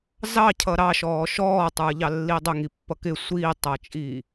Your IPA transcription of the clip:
zɑcʰʌ ɾɑʃɔː ʃɔːtˤə˞ʎɑlːi dˤʊŋipːʌ kɪ sʷiːtˤʌːt͡ʃʼi

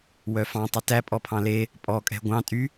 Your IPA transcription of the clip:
wœfɑ̃ tˤʉtæ pʼɔpʰɑ̃le | pʼɔ kʼɛ̤ɡʷɑ̃ tʼy

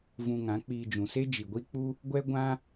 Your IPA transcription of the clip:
vũ˧ŋã˨˦k͡piː˧ d͡ʒũ˨se˦ d͡ʒi˨ɡʷi˦k͡pu˦ | ɡʷɛ˦ ɡʷã˦

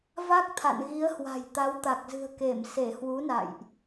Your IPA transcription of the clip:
va˦˥k̚t̪ʰa̰˧˨nɣi˨˦ə̯hwa̤˨˩j t̪a˨˦wt̪a˨˩k̚zɨ̤˨˩ə̯ke˧˩m se˧˩hwu˨˦na̰˧˨jʔ

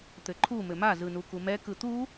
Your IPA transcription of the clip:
t̪ɘǃʰu mɘma zɯnukumɛ kɯt̪u

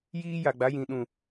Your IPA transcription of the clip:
jiː˦ ja˨ɡ͡ba˨˦jĩ˨ ɗũ˨

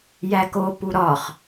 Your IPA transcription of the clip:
jæko puɾɒχ

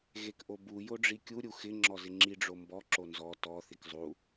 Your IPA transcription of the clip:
ɣekʔobu joɖ͡ʐikʲu ɾʲuxɪ ŋ͡ǁɔzɪŋ͡ǁi ɖ͡ʐombɔ ǁonzɔ tɔ θikzˤu

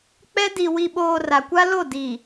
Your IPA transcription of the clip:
k͡pɛ˦ di˨wi˨ɓoː˨ ra˨kʷa˦lo˦˨ di˨

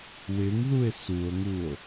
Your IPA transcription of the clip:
wɪŋðue̯ suo̯ŋuo̯

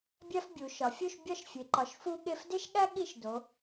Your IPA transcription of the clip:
bʲæ˥fbʲu˩˧ ʃɒ˩˧fʲu˥˧ʃbʲɒ˥˧ʃ fʲe˩˧ǃɒ˩˧ʃ fu˥ɠe˥˧f de˥ʃɠæ˥ ɠi˥˧ʃdo˩˧

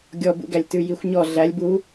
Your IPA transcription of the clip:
ɡʲɔbṵɡælʲ tʉjixʷɲɔ ɮælʲ bu

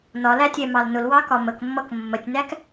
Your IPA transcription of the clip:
nɒlæ tʲɛmɑlnʊlwɑ kɒməkmːʌk mːətʲnæk

